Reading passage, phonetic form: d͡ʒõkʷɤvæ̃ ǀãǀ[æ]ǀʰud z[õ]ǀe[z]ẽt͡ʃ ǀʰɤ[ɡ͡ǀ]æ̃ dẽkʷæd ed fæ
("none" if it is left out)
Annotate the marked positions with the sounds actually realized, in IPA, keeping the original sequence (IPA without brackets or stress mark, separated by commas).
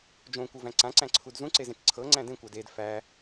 æ̃, ũ, z, ŋ͡ǀ